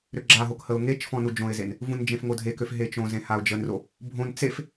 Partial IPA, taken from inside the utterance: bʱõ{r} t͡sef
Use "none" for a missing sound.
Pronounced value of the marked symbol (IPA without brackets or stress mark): n